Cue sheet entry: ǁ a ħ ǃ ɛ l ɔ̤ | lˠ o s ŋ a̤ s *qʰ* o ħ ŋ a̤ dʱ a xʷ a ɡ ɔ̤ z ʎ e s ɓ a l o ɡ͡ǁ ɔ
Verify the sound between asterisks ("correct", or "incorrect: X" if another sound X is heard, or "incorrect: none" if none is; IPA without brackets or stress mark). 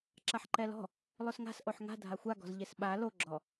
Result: incorrect: ʔ